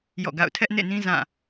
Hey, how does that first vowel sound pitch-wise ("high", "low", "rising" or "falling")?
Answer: falling